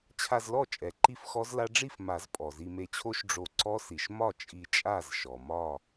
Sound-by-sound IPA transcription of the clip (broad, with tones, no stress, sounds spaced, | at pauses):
t͡ɕʰ a˧ z l ɔ˥˨ t͡ʃʼ ɛ˩ ǃ i˥˨ f x ɔ˦˥ z l a˦˥ ɖ͡ʐ i˥˨ f m a˨˩˦ z pʼ ɔ˩ z i˧ m e˧˩ t͡ɕʰ o˦˥ ʃ ɖ͡ʐ o˧˩ ǀ ɔ˦˥ s i˩ ʃ m ɒ˥˨ t͡ʃʼ i˧˩ t͡ʃʼ a˥˨ z ʃ ɔ˩ m ɒ˥˨